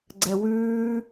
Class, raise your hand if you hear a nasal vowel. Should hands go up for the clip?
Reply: no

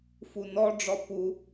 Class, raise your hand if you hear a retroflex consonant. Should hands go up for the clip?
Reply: yes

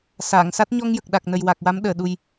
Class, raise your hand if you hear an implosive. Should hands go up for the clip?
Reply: yes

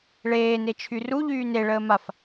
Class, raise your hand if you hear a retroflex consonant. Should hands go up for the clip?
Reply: yes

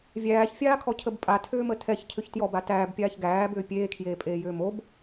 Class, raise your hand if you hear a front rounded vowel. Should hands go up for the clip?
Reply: yes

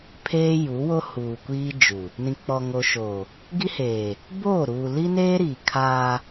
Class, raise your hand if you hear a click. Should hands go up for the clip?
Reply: no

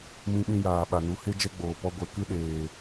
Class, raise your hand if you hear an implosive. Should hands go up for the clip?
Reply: yes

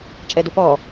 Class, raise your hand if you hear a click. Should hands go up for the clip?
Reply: no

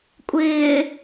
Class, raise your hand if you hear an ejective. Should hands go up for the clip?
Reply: yes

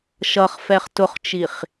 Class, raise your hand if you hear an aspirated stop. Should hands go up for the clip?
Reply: no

